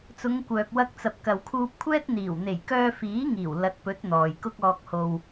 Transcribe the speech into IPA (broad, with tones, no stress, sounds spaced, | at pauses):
t͡s ʊ˨˧ ŋ kʷ œː˨ k̚ w ɐ˧ k̚ t͡s ɐ˨ p̚ k ɐ˨ w kʰ uː˧ p̚ kʷʰ ɛː˥ t̚ n̪ iː˨˩ w n̪ e˨˩ j k œː˧ f iː˨˥ ŋ iː˨˩ w l ɐ˨˥ t̚ p ɵ˨˥ t̚ n̪ ɔː˨ j k ʊ˥ k̚ ɔː˧ k̚ h o˧ w